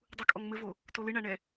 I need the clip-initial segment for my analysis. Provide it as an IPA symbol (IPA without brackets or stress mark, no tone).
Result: dˤ